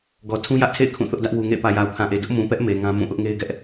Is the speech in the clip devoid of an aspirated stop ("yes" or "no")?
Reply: no